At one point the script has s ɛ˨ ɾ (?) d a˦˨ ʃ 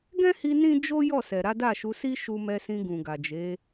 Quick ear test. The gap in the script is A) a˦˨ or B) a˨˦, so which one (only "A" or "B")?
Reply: B